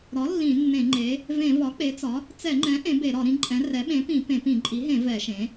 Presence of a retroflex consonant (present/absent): absent